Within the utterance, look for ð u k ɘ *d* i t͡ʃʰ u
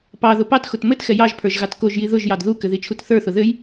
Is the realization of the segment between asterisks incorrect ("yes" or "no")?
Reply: yes